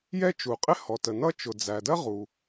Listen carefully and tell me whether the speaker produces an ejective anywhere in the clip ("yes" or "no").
yes